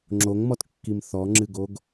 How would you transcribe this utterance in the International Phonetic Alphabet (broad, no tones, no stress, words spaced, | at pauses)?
ŋ͡ǁoŋmɔtkːim θɔŋ͡ǁɨɡoɡ